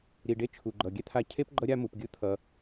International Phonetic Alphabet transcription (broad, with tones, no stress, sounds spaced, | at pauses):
ɾ i˨ ɖ e˥ t͡ʃʰ u˩ ɡ͡ǃ ʌ˩ ɡʲ ɛ˥ t̪ʰ a˥ cʰ e˥ p ɡ͡ǃ ʌ˦ ɾʲ a˥ m u˩ p ɡʲ ɯ˥ t̪ʰ ʌ˩